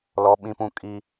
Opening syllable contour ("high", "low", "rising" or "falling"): high